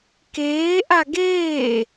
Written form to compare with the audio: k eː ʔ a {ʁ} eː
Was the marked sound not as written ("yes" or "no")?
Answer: yes